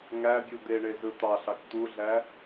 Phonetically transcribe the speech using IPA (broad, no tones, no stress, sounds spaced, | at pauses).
ŋ æ bʲ u d̪ e ɳ e z ɯ t̪ ɑ ɬ ɑ k t̪ u ɮ æ